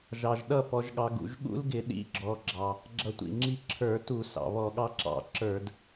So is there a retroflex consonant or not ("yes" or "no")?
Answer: no